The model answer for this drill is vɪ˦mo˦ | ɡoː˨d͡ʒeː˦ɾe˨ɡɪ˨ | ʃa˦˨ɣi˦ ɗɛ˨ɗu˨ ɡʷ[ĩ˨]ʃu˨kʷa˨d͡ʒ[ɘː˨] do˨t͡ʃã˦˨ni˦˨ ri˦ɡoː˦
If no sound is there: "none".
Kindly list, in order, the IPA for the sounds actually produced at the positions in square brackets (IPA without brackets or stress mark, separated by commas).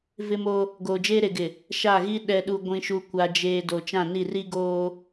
ĩ˨, eː˨